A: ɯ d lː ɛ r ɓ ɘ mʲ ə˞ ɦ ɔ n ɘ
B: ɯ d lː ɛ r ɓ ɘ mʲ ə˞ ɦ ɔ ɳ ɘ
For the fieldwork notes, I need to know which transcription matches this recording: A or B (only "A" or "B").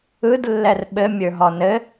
A